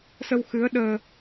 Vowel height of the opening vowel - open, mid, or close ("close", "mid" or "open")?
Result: mid